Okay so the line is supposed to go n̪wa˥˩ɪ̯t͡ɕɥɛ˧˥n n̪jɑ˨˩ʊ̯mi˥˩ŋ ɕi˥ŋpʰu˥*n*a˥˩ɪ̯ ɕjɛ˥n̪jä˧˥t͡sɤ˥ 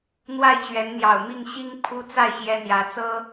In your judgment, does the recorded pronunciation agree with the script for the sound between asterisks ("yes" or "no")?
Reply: no